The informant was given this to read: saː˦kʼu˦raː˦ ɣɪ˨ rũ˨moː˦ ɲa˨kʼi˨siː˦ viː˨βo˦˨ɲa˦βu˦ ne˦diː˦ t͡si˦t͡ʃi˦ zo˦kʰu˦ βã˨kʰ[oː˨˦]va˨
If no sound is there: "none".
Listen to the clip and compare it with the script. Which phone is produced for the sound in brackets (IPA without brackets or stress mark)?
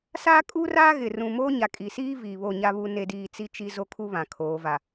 oː˨˦